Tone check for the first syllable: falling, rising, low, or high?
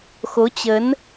rising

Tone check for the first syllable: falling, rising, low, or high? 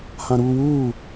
high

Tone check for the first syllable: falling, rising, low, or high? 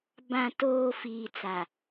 low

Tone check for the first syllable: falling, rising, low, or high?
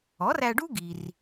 rising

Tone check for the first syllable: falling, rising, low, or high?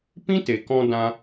high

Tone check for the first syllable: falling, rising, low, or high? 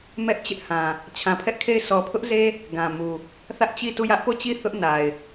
high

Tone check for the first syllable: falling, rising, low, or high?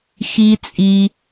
high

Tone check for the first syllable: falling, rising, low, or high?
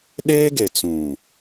high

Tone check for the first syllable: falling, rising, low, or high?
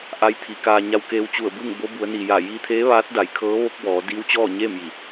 rising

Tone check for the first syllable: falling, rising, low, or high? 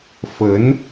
rising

